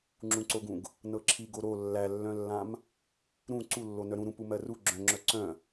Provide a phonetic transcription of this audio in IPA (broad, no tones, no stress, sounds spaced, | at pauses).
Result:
ŋ͡ǁ ũ ǀ o ɡ ũ ɡ | n ɤ ǁʰ i ɡ o ɾ o lː æ lː œ̃ lː ã m | ɾ ũ ǀ u lː o n œ ɾ ũ ɾ ũ p u m ɜ r u ɡ͡ǁ œ̃ ŋ͡ǁ œ ǀ œ̃